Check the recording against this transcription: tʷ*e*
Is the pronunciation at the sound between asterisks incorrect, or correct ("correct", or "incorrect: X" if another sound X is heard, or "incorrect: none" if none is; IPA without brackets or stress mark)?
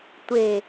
correct